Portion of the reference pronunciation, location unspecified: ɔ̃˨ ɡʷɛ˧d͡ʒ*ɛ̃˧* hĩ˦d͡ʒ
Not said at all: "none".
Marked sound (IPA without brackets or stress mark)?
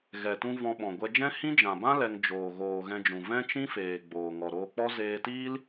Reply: ɛ̃˦